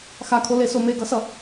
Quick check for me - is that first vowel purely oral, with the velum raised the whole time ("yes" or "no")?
yes